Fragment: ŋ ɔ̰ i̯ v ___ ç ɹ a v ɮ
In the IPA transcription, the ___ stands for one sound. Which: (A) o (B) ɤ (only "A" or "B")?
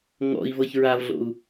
B